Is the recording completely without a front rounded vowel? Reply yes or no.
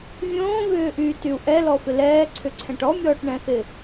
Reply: no